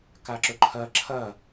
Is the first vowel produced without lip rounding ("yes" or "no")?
yes